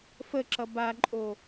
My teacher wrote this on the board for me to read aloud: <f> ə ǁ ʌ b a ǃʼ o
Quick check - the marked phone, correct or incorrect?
correct